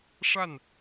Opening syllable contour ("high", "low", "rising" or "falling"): falling